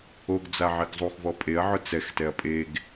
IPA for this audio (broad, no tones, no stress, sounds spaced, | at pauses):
o ɡ d͡z a ʕ i ɡ zˤ u x v ɔ pʼ e ɐ̯ ʕ ʊ t͡s ɛ x t ɛ ɐ̯ pʼ e ɡ